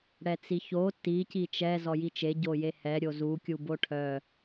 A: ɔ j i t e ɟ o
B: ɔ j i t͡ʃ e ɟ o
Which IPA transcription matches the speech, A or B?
B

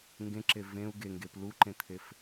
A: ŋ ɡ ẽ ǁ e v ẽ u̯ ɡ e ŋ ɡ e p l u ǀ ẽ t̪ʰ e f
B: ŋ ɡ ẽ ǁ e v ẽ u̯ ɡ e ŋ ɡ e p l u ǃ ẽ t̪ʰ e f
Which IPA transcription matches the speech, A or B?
B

